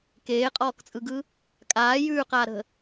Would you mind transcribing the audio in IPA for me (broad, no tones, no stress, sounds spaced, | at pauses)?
k eː qʼ ɔː k t͡sʼ ɯ ɡ ɯ | kʼ aː j ʉː q aː ɾ ə̤